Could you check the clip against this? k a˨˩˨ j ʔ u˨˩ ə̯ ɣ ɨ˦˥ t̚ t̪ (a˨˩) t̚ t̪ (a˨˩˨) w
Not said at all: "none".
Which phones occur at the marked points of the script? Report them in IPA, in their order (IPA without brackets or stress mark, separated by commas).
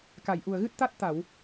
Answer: a˦˥, a˨˩˨